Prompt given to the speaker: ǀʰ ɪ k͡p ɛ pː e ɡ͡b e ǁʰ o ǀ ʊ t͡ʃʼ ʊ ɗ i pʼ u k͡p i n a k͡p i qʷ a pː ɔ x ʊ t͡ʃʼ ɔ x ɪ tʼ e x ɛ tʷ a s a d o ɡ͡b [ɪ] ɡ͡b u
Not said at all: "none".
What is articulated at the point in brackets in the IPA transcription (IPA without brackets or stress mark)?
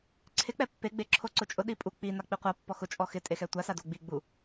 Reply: i